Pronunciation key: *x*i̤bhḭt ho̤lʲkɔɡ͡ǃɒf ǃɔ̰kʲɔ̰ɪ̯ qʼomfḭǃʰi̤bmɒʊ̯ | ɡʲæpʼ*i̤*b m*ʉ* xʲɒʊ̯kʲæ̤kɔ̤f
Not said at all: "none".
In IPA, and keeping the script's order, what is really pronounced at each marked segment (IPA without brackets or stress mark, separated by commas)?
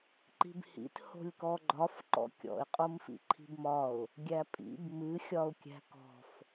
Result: ǃ, ḭ, ɨ